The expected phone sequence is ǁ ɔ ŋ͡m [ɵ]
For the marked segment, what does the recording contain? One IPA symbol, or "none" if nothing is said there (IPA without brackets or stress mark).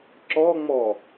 ɔ